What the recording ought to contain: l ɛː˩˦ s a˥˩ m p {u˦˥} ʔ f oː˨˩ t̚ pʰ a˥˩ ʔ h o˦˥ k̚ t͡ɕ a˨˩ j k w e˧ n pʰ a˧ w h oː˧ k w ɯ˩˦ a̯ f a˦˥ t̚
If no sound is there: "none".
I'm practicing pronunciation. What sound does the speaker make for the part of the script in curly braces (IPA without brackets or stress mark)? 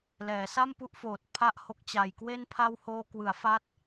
u˦˥